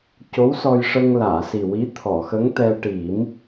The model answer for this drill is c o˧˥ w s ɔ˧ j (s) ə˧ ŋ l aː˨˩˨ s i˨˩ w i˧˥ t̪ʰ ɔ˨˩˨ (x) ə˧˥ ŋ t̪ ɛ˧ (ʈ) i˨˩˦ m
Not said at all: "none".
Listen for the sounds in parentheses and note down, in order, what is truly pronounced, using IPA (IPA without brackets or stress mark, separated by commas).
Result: ʂ, x, ʈ